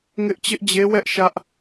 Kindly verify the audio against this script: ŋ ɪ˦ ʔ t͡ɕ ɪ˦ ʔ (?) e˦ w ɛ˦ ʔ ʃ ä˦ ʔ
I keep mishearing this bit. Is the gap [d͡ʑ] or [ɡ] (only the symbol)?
d͡ʑ